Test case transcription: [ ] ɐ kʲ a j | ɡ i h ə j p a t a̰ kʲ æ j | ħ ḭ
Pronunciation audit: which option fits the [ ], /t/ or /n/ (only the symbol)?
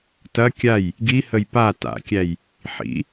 t